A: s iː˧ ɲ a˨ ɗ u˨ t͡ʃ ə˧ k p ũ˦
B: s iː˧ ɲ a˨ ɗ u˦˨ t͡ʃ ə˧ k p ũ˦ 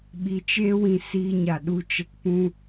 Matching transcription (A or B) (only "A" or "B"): B